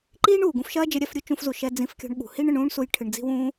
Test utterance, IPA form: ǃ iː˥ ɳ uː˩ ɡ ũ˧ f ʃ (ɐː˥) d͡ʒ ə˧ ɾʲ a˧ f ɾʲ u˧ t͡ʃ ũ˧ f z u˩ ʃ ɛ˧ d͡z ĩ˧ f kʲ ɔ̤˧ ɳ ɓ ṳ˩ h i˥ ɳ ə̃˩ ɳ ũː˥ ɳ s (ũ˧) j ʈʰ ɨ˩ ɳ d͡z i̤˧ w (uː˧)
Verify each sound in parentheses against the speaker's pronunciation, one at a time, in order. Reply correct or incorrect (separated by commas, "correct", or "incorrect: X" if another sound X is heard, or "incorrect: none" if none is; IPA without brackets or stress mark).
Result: correct, incorrect: u˧, incorrect: ũː˧